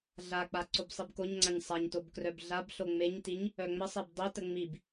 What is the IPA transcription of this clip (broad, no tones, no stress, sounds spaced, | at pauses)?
ɮ a k͡p a ǀ o b sˤ i b k o ɲ ŋ͡ǀ a ɲ sˤ a ɲ t o b k r œ b ɮ a b ɬ o ŋ͡m e ɲ t i ɲ | œ ŋ͡m ə sˤ e b dˤ i t ə ŋ͡m i b